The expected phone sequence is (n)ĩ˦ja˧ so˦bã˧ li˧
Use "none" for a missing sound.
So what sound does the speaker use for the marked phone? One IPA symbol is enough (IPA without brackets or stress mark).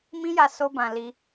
m